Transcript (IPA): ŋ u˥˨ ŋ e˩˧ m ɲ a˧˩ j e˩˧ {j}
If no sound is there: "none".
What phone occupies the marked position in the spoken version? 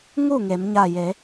none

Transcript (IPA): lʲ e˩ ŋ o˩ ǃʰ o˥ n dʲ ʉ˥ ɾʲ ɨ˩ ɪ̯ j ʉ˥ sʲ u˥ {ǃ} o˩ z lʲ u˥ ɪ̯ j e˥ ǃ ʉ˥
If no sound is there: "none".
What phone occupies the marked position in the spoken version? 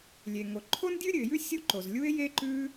ǃ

